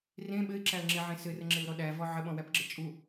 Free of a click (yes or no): no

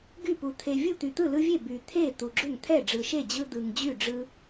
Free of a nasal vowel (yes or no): yes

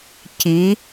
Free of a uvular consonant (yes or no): yes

